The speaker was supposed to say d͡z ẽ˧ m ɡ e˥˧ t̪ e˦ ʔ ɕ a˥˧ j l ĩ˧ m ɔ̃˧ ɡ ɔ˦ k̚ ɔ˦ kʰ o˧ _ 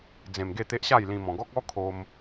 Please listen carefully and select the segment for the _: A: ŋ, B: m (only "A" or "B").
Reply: B